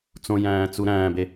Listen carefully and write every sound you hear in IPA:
t͡s õ j æ̃ː t͡s u ɾ æ̃ː b e

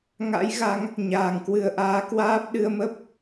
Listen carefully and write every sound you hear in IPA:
ŋ a̰˧˥ j ɣ a˨˦ ŋ | ɲ aː˨˩ ŋ k w ɨ˧ ə̯ ʔ aː˨˦ k w aː˦˥ p̚ ɗ ɨ˧ ə̯ m ə˦˥ p̚

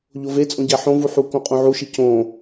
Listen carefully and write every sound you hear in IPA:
ʎ o v e t͡sʼ õ ɟ æ ħ õ v u ħ u k õ qʼ ũ ʕ u ʃ i c õ

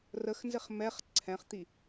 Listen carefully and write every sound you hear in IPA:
r ə x n z ɪ χ m ɛ χ ǀʰ ɛ̃ χ t̪ i

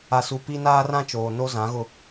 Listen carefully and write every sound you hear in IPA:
a˨ s u˨ p i˦ n aː˦ r ã˦ t͡ʃ oː˨ n o˦ z ã˨˦ ɣ ʊ˦

